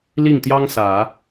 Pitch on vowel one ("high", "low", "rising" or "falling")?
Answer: falling